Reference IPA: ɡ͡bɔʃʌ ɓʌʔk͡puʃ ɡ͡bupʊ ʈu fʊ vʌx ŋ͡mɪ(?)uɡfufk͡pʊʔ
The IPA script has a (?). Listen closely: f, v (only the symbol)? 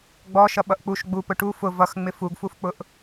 f